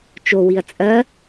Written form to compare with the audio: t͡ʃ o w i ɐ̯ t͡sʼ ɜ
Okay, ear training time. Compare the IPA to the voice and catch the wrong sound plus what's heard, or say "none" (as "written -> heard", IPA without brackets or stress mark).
none